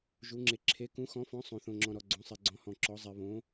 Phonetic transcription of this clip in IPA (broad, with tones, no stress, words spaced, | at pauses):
ʒu˨˦ŋ͡ǁe˨˦ ǁʰe˨˦ kũ˨˦xɔ̃˨˦fɔ̃˨˦ sˤõ˨θõ˨ŋ͡ǁɔ̃˨ ɾɔ˨ɡ͡ǀõ˨˦sˤɛ˨ ɡ͡ǀɔ̃˨˦hɔ̃˨ǁɔ˨˦ zˤɛ˨βõ˨˦